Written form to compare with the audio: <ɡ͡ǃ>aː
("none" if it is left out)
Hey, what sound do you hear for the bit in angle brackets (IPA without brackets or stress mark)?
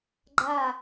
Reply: ɡ͡ǃ